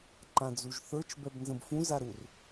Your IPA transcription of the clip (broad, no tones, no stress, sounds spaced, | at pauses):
ǃ ã d͡z u ʒ θ ə˞ t͡ʃ b ɛ b n z ə̃ b f ũ z a ɾ u r